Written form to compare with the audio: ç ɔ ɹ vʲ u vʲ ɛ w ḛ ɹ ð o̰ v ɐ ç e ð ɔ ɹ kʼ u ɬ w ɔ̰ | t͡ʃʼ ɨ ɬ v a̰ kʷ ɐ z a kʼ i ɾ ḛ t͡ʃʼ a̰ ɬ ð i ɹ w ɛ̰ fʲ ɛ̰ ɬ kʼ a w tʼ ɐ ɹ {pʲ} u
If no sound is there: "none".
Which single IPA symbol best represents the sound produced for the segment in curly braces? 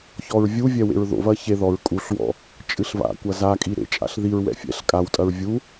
vʲ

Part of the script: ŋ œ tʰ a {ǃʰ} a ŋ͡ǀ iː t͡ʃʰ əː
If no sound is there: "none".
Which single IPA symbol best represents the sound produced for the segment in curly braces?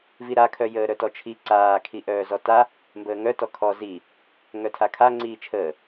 kʰ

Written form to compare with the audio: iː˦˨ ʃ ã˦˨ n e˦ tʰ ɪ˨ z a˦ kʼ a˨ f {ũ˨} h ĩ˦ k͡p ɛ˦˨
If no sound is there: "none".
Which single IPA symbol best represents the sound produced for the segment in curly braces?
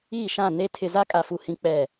u˨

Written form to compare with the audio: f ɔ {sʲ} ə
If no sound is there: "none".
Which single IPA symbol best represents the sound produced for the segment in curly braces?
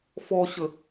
ɕ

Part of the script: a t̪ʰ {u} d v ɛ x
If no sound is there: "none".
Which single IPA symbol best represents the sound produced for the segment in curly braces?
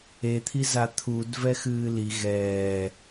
u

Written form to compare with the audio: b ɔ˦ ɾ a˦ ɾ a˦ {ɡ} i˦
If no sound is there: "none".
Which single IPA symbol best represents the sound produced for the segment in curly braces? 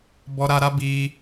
b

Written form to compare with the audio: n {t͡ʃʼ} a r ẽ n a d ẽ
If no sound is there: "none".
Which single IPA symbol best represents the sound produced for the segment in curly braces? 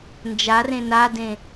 d͡ʒ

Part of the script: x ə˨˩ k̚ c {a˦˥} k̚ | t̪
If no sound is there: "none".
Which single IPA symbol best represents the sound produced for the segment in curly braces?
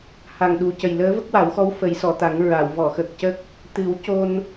ə˦˥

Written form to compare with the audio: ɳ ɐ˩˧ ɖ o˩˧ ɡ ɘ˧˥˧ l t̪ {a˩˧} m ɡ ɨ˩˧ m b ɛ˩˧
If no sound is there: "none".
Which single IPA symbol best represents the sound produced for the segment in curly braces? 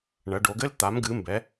a˩˧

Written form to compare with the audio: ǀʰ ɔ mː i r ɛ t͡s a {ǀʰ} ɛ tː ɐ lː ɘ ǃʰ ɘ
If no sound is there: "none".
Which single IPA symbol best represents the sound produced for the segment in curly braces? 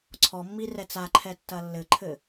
ǃʰ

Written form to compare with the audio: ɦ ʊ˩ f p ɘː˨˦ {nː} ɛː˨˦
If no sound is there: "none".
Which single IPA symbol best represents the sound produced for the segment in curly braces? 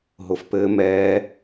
m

